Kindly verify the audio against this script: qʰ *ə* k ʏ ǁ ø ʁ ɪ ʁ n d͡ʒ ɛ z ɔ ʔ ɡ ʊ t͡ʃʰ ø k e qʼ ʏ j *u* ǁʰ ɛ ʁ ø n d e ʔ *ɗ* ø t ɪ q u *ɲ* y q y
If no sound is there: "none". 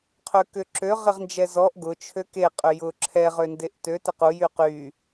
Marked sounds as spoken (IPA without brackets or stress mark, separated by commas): ø, ʊ, t, j